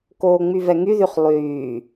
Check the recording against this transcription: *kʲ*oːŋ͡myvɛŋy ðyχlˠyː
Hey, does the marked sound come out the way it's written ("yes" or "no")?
no